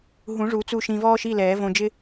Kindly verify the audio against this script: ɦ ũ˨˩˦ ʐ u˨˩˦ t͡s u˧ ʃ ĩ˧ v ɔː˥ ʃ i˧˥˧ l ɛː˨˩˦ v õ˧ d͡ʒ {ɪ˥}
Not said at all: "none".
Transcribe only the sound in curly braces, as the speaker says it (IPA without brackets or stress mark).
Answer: ɪ˥